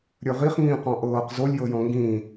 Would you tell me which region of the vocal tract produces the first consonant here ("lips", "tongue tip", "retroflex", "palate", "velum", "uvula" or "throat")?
tongue tip